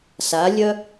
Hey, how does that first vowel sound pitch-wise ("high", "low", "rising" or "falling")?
rising